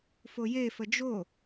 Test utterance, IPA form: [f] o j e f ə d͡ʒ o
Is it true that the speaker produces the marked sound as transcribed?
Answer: yes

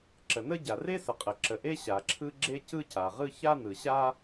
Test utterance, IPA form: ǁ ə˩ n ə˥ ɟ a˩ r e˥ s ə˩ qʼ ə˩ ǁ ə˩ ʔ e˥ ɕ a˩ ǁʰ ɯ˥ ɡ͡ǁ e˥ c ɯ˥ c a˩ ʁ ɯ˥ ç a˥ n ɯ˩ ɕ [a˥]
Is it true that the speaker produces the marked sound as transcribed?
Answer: yes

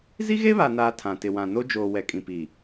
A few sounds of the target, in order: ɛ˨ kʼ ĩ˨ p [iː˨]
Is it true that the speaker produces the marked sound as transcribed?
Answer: yes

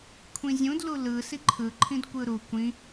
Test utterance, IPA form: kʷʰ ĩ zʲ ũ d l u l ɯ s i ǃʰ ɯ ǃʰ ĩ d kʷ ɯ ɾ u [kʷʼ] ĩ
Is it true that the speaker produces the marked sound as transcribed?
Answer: no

